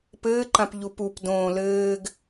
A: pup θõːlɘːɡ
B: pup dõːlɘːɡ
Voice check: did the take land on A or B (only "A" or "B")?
B